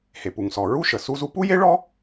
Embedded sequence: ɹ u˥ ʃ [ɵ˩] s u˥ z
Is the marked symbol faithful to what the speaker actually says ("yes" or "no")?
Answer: no